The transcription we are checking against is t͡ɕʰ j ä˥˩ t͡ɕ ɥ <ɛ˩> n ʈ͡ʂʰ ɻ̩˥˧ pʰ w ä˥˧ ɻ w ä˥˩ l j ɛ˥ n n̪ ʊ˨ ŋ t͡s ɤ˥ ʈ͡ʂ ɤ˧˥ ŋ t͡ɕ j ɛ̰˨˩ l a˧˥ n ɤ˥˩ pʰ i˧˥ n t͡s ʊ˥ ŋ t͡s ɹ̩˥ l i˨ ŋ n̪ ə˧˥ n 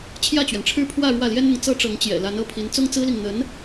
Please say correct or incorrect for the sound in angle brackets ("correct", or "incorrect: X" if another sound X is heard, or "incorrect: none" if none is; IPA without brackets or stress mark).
correct